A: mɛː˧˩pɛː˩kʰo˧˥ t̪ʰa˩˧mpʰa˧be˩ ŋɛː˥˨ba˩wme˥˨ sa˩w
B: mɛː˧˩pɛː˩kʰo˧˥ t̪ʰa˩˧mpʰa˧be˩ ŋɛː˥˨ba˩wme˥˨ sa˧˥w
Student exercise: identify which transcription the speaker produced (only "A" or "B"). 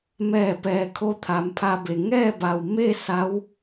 B